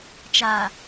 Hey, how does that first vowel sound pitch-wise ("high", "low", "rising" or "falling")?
low